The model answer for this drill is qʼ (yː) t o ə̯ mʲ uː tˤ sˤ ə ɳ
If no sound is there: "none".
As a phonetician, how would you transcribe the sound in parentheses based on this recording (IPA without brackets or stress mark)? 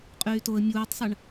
yː